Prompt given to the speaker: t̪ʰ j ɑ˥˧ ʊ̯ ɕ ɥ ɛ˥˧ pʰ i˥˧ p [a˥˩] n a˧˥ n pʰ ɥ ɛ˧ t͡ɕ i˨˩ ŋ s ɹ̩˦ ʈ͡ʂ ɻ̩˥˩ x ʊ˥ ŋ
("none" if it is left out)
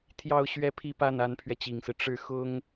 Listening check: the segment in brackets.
a˥˩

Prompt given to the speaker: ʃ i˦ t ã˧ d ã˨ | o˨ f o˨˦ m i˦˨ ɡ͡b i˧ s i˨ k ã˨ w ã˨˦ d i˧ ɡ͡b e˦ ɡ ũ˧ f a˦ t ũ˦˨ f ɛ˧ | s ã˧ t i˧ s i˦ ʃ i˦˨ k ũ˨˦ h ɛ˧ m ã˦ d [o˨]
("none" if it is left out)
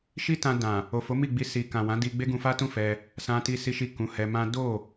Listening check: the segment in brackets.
o˦˨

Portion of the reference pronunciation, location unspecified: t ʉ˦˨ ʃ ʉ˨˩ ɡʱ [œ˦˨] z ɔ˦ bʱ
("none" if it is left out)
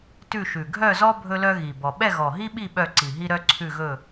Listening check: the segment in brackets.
œ˦˨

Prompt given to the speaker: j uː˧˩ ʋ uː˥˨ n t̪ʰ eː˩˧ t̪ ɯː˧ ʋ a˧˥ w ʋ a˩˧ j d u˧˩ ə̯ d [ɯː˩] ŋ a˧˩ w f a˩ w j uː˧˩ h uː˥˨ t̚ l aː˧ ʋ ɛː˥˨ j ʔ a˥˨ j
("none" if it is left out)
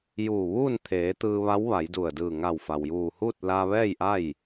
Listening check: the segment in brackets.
ɯː˧˩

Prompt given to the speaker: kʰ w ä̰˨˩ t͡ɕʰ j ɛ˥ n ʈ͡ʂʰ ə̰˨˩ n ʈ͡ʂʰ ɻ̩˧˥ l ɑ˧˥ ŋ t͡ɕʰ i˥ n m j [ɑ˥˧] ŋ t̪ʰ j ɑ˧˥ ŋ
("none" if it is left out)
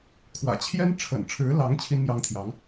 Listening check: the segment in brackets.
ɑ˥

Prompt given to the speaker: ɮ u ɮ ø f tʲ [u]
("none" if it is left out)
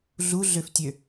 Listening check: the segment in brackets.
ø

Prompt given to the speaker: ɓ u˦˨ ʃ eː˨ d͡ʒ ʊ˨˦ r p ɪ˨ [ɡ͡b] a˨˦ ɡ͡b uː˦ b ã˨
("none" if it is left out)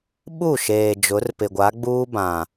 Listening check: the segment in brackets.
ɡʷ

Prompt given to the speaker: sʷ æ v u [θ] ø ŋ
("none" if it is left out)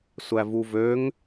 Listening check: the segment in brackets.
v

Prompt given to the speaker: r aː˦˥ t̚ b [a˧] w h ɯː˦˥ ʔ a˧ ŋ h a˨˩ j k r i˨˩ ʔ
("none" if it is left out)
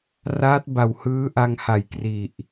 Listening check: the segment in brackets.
a˨˩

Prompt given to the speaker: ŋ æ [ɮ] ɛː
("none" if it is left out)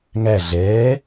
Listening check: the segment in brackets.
ɮ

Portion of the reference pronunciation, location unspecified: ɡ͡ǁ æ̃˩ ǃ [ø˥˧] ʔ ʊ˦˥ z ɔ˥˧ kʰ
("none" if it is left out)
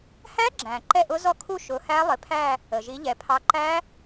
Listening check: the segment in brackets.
ɛ˥˧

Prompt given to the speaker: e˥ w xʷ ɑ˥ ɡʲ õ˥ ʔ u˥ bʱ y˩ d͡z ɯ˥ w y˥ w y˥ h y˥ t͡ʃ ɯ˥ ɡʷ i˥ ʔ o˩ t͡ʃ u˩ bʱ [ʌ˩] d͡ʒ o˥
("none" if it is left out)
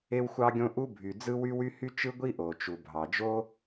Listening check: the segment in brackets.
ɑ˩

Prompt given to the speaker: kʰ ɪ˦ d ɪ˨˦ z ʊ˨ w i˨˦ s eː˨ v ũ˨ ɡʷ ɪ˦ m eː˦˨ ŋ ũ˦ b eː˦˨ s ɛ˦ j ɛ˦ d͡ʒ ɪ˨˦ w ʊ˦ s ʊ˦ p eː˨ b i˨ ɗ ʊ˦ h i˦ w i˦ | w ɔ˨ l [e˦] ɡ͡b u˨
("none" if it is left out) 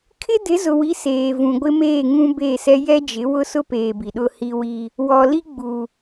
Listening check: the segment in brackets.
i˦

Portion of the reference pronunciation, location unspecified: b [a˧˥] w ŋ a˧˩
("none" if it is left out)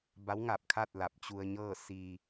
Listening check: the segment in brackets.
a˧˥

